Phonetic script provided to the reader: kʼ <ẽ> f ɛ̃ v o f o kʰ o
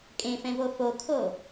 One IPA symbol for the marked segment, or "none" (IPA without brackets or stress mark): ẽ